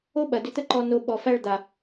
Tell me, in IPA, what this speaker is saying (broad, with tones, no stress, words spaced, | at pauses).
o˥ɓɐ˩ dʏ˨t̪ə˦ǃɔ˨ no˨ ɓɔ˩fæ˦ɭd̪a˩